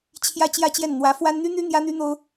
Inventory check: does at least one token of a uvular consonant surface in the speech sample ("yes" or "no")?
no